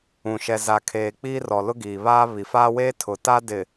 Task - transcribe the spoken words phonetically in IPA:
ũ˨ ʃ ɛ˨ z a˨ kʰ eː˨ k͡p iː˦ r ɔ˨ l ʊ˦ ɡ iː˨ β aː˦ β i˨ f aː˦ w eː˦ tʰ ʊ˨ t a˦ d ɪ˨

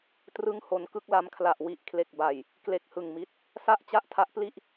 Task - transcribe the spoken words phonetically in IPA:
t r ɯ˥˩ ŋ h o˧ n k ɯ˥˩ k̚ l a˦˥ m kʰ l a˨˩ ʔ w i˨˩ ʔ kʰ l e˨˩ k̚ b a˨˩ j | k l e˦˥ k̚ h ɯ˨˩ ŋ m i˦˥ t̚ | s a˥˩ ʔ t͡ɕ a˥˩ ʔ tʰ a˦˥ ʔ p l i˥˩ ʔ

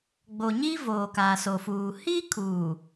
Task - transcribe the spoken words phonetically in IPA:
ɡ͡b o˨ ɲ i˦ v oː˨ k aː˨ s o˨ f uː˨ h iː˦ kʰ uː˨

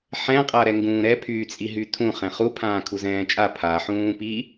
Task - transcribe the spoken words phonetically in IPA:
ħ ɛ̃ qʼ a ɾ ɛ ŋ ɡ ũː ɾ ɛ pʰ y t͡sʼ i ɦ y tʰ ũ χ ɛ̃ χ u pʰ ãː kʰ u z ɛ̃ː t͡ʃʼ a pʰ a ħ ũː p i

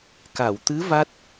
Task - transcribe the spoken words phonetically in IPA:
k a˨˩˨ w t̪ ɨ˧˥ v a˦˥ t̚

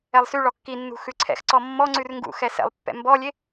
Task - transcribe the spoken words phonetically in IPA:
ɛ lˠ s y ɭ ɔ kː i nː ṳ x ʉ ǀʰ ɛ̰ x ǀ ɔ mː ɔ ŋ͡ǀ ʉ r ŋ ɡ ṵ x ɛ s ɛ̰ lˠ pː ɛ̰ m b ɔ lʲ e

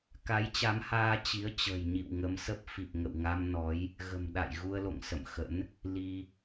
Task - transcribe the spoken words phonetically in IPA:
k a˨˦ j t͡ɕ a˨˦ m h aː˧ t͡ɕ i˨˦ ə̯ t͡ɕ ə̤ː˨˩ j ɲ ḭ˧˨ w ŋ ə˨˦ m s ə˦˥ p̚ f i˨˩ p̚ ŋ ə̰˧˨ w ŋ a˧ m n ɔ˨˦ j | ɣ ə̤˨˩ m ɗ a̰˧˨ j ɣ u˧ ə̯ l o̰˧˨ ŋ s ə̰˧˨ m x ə̰˧˥ n | l i˧

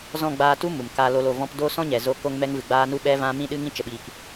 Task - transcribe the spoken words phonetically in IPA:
z ɔ̃˦˨ ɡ͡b aː˧ t u˦ m u˨ m k aː˧ l o˧ l o˨ v ɔ̃˧ p d oː˦ s ɔ̃˦ ɲ ɛ˨ z o˧ k o˧ ŋ m ɛ˧ ŋ v ɨ˨ ɡ͡b aː˧ n u˦ ɓ ɛ˦ v ã˧ m ĩ˧ ɗ ɨ˧ ŋ ĩ˧ t͡ʃ ə˨ ɓ iː˨ k

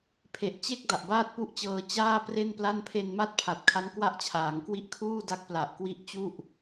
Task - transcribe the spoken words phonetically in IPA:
pʰ e˨˩ ʔ t͡ɕ e˥˩ k̚ d a˨˩ ʔ b aː˥˩ t̚ p u˥˩ ʔ t͡ɕ ɤː˧ t͡ɕ aː˥˩ p r e˥˩ n p l a˥˩ n pʰ e˧ n m a˦˥ t̚ pʰ a˨˩ t̚ kʰ a˦˥ n k w a˥˩ ʔ t͡ɕʰ aː˩˦ ŋ k w i˥˩ ʔ kʰ uː˥˩ d a˦˥ k̚ p l a˨˩ ʔ k w i˦˥ ʔ t͡ɕ u˥˩ ʔ

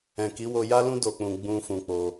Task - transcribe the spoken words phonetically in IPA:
ɛ̃˨ k i˨˦ w o˧ j a˦ l ũ˦ d o˧ k͡p ũ˧ ɡ͡b ũ˧ f ũ˧ k͡p o˧

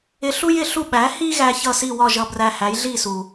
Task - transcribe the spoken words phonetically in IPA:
ɪ˧ ɬ u˥ j ɪ˥˩ ɬ u˥˩ ɓ æ˩˥ h i˥ ɣ æ˧ ç ʌ˥˩ s i˥˩ w ɒ˥˩ ʒ ʌ˧ b r æ˧ h æ˩˥ j ɮ i˥˩ s u˩

